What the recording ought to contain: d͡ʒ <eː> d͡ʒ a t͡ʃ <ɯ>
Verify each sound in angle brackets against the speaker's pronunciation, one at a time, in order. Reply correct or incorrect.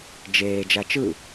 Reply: correct, correct

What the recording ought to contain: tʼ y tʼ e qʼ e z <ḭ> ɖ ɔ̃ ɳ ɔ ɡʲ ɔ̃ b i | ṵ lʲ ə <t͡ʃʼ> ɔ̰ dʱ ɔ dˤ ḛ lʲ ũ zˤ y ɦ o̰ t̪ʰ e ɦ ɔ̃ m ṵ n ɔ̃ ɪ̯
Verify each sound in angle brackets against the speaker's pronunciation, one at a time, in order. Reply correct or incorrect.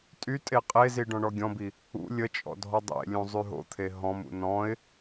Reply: incorrect, correct

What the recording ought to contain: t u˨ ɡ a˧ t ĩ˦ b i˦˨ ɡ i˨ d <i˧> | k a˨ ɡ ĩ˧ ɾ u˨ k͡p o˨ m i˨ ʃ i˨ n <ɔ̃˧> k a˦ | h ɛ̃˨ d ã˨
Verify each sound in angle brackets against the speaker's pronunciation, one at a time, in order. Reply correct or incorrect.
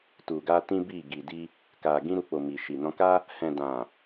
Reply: correct, correct

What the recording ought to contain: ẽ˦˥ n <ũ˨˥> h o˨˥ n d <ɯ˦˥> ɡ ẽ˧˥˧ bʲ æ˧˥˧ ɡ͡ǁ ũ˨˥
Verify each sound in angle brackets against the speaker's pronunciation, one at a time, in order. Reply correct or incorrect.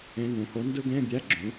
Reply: correct, correct

